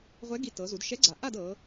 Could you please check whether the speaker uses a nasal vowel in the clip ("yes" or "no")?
no